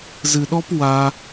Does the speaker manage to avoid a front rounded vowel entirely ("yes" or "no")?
yes